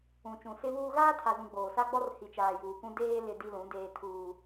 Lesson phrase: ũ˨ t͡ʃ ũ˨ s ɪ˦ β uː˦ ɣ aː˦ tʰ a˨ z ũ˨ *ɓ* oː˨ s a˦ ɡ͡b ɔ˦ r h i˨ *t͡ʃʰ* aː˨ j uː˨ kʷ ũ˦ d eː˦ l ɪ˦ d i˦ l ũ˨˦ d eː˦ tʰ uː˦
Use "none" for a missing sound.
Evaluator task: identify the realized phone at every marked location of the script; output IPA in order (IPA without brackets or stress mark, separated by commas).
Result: ɡ͡b, t͡ʃ